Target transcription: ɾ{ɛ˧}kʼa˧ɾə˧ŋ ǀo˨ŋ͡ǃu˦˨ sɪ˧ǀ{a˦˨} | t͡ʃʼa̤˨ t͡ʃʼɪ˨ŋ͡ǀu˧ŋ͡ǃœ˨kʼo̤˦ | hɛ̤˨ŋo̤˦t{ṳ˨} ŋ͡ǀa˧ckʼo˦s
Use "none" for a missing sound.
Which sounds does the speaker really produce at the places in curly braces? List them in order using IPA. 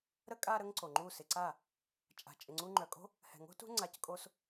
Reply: ə˧, a˦˨, ṳ˦

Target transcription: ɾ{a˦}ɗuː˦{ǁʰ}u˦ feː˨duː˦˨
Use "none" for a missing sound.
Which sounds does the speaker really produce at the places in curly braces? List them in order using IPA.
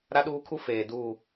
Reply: a˦, kʰ

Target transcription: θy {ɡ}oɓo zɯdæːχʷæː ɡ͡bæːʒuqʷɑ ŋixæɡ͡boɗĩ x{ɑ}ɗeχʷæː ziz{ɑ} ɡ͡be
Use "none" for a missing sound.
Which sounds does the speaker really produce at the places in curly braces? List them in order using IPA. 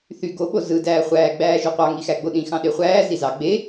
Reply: ɡ, ɑ̃, ɑ

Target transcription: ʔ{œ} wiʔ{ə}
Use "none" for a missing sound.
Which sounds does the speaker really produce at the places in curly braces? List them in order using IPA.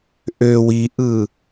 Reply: ø, ɯ

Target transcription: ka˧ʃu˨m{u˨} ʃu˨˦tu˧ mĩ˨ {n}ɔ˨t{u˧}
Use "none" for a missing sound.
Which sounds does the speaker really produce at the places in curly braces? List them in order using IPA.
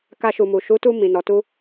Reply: u˨, n, u˧

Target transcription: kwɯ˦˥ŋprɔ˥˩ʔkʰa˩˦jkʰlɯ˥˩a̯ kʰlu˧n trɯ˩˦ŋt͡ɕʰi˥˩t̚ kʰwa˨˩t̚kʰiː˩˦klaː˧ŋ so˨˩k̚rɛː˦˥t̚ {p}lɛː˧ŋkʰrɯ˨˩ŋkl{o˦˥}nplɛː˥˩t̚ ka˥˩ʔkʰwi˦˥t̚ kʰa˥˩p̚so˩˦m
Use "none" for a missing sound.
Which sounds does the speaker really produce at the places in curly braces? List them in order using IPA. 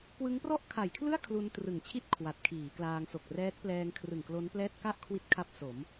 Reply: p, o˦˥

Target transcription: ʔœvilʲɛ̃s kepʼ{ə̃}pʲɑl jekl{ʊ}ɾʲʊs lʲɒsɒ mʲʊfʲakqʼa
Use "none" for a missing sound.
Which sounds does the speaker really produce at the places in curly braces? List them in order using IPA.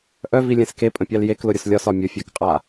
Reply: ə̃, ʊ

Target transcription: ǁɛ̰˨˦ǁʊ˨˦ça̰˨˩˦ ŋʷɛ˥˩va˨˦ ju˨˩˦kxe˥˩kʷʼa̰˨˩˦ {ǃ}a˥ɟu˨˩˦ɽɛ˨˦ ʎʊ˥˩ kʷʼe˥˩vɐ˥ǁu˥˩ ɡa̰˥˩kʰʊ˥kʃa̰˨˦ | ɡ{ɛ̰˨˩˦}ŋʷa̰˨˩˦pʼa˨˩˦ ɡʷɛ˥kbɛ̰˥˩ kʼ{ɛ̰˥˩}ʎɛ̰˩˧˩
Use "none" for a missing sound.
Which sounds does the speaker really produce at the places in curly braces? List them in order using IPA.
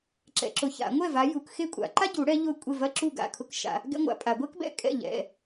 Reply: ǃ, ɛ̰˥, ɛ̰˥˩

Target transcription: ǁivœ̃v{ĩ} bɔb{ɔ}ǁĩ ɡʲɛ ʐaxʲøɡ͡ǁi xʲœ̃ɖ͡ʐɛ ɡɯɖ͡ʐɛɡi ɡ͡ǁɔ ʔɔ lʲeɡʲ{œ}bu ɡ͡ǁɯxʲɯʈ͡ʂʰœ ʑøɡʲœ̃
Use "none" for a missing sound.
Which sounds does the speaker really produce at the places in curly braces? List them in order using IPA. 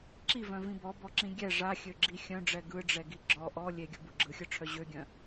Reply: ĩ, ɔ, œ

